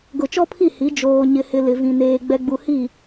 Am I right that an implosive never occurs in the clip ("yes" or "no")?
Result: yes